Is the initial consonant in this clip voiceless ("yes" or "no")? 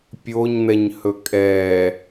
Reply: yes